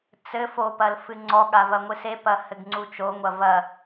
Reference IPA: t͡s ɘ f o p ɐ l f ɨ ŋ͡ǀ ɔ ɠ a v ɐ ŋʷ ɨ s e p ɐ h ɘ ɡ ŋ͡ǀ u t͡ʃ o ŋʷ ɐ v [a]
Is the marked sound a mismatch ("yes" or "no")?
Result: yes